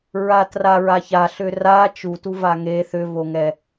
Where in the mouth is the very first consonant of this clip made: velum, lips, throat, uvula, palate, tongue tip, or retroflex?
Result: tongue tip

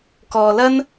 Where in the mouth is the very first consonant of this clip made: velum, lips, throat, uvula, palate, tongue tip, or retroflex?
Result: velum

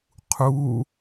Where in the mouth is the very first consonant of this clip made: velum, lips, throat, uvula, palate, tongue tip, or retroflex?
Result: uvula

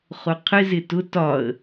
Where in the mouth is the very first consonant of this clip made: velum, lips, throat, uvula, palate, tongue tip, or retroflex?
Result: uvula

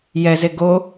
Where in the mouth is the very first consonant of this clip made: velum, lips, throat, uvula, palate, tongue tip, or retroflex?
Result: palate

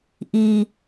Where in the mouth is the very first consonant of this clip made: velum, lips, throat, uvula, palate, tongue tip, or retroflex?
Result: throat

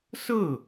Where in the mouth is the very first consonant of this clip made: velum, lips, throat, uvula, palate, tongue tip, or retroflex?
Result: tongue tip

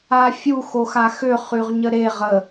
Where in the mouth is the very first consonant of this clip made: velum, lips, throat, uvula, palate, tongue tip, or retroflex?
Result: lips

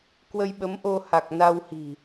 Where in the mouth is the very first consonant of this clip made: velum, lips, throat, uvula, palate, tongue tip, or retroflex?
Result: velum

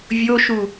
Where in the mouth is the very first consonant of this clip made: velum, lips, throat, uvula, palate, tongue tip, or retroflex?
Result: lips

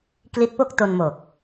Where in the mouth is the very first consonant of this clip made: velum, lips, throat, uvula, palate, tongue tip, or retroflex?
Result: velum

